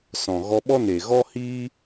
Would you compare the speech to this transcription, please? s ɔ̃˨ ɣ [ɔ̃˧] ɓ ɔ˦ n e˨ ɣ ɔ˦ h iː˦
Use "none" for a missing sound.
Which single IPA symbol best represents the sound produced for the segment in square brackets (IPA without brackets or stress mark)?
ɔ˧